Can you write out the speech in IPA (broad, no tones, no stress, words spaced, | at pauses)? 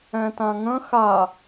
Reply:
ɛ̃tãŋə̃ xa